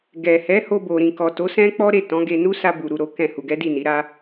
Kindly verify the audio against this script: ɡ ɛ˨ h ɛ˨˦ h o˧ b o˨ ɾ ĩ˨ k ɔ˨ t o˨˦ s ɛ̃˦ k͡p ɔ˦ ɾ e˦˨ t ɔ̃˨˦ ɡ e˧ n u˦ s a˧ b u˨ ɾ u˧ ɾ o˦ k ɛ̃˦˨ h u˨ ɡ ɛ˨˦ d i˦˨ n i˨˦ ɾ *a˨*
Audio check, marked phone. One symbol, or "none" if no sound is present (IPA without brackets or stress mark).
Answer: a˦